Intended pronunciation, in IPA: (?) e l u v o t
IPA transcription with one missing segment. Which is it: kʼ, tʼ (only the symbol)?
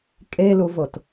kʼ